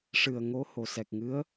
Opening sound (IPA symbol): ʂ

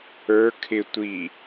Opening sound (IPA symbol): ə˞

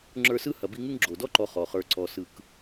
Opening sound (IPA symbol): ŋ͡ǁ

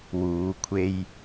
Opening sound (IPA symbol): w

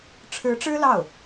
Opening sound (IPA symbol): ʈ͡ʂʰ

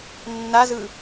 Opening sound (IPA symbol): nː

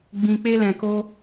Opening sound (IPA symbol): ɡ͡b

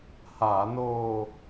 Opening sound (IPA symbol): h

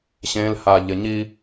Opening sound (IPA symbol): ɕ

